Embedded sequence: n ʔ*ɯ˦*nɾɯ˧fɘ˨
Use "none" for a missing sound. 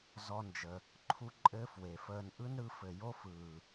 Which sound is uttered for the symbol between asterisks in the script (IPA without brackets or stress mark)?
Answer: ɯ˦